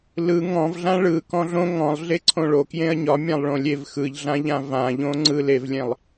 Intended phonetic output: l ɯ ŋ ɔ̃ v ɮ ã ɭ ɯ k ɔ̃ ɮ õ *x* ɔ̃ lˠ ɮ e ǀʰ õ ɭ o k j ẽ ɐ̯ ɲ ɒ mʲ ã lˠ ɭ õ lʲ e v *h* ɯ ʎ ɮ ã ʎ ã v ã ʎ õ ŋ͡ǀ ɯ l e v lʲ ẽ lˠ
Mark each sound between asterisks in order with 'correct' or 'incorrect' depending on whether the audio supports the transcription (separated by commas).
incorrect, incorrect